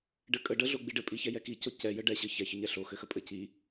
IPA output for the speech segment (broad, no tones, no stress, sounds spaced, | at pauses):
ɖ ɘ kʼ ə ɖ ə ɮ o ɡ͡b i ɖ ɘ pʼ i ç ɛ j ɛ k i c o c ɛ j ə ɖ ɛ ɕ ɘ ç ɛ ç ə ɲ ɛ ɬ o x ɘ x ə pʼ ɘ c i